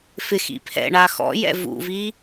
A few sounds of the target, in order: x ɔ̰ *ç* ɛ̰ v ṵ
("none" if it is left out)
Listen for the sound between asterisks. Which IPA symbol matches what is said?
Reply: j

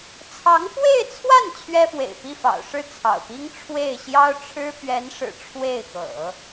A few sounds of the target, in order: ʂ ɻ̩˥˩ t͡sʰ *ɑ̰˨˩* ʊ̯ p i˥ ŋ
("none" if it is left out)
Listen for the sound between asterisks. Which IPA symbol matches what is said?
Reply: ɑ̰˨˩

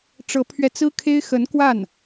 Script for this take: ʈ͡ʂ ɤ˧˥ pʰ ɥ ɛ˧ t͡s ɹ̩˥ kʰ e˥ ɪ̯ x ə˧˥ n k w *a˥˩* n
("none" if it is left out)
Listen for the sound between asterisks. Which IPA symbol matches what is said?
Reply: a˥˩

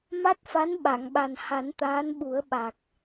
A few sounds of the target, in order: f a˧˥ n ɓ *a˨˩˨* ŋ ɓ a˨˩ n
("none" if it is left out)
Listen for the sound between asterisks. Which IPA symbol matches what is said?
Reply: a˨˩˨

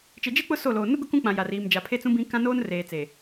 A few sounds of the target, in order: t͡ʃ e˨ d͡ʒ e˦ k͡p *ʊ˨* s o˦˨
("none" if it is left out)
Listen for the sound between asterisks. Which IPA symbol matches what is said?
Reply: ʊ˦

